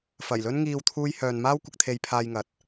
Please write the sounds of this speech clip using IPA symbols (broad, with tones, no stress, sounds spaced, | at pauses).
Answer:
f ɐ˨˩ j l ɵ˥ n ŋ iː˧ w t̪ʰ uː˧ j h œː˨ n m aː˥ w kʷ ɪ˧ k̚ t̪ʰ e˧ j pʰ aː˧ j ŋ ɐ˨˥ t̚